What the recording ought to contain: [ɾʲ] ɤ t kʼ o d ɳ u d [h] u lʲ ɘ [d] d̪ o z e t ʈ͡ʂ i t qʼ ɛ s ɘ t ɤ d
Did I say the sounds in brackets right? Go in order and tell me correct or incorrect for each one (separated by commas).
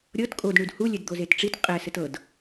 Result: correct, correct, correct